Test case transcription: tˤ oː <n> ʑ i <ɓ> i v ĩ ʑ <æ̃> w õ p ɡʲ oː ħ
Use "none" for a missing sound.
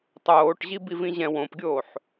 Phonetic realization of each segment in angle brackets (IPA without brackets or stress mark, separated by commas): ʈ, b, ɛ̃